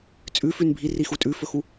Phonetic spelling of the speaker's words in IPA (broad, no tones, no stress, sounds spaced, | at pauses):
t͡sʼ ʉ f ʉ n bʱ i r i x u tʼ ʉ f ɵ x u